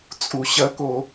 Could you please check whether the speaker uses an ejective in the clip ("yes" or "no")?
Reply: yes